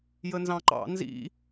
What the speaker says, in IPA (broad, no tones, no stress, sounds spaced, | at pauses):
j ə n z ɑ̃ ǃ ɑ̰ n z ḭ